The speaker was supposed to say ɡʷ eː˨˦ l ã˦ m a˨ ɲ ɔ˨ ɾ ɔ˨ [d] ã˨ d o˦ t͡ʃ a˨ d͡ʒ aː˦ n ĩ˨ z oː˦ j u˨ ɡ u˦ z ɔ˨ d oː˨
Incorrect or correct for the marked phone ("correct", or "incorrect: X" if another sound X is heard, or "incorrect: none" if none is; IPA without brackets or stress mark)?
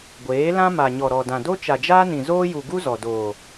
correct